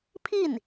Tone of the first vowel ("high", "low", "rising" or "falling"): falling